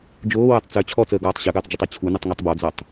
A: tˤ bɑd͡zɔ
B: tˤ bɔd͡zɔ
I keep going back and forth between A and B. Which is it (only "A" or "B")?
B